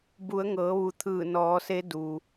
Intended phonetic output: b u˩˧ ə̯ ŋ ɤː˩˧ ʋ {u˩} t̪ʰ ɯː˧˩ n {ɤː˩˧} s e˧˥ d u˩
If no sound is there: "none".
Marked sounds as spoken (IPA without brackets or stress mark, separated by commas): u˩, ɔː˩˧